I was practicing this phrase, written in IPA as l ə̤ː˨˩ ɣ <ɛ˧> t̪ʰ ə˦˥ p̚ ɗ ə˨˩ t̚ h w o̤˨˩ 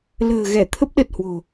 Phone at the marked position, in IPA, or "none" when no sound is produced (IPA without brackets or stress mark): ɛ˧˩